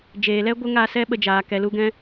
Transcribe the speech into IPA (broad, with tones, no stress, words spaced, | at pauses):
d͡ʒeː˨lɛ˦ ɡʷə˦ŋa˦˨ sɛ˦ ɓə˧d͡ʒaː˨ kɛ˨lu˧ ɡɛ̃˧